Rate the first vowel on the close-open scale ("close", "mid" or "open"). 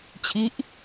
close